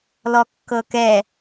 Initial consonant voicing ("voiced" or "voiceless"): voiced